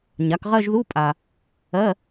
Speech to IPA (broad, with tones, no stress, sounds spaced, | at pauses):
ɲ a˩˥ k ʁ ɜ˥˧ ʒ ð u˧˥˧ pʼ a˨ | ɜ˧˥˧